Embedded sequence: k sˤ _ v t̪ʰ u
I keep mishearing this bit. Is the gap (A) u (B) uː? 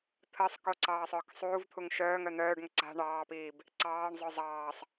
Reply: B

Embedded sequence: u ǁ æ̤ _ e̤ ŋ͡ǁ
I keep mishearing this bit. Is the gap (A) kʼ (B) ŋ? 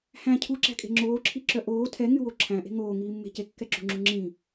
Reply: A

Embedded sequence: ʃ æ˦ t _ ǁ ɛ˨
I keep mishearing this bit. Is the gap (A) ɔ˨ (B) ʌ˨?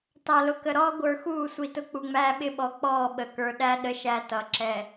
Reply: B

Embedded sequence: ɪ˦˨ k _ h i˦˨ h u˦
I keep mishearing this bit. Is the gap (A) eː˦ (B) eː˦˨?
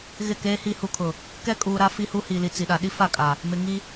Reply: A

